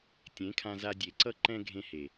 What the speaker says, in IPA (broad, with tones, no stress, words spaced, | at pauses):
tʲẽ˨˦kʰã˧za˧ dʲe˨ǀʌ˧ ǃɛ̃˧ ɡʱẽ˧he˨